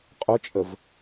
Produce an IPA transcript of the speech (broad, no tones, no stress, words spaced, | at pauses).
qʼʊt͡ʃʼəv